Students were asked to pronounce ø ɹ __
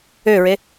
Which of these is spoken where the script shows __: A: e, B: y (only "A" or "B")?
A